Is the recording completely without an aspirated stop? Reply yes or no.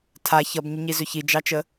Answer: no